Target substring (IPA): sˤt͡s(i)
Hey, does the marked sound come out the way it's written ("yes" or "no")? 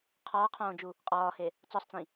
no